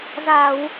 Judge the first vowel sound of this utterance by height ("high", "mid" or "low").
low